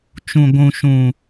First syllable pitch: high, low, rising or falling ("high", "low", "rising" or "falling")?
low